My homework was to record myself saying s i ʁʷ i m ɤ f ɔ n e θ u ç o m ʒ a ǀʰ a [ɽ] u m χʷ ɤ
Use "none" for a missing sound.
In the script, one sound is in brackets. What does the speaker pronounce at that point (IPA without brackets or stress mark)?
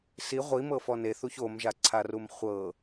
r